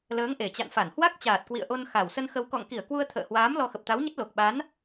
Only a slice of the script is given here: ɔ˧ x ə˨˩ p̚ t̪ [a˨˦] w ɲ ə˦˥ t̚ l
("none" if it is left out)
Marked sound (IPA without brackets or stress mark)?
a˨˦